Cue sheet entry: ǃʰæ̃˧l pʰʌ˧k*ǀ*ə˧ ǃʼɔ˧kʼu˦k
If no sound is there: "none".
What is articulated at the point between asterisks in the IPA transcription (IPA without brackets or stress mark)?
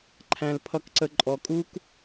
ǀ